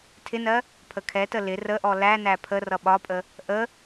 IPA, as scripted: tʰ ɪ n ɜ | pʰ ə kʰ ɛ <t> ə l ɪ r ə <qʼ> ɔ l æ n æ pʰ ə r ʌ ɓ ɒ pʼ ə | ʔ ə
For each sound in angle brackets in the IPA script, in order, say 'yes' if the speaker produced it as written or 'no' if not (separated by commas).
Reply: yes, no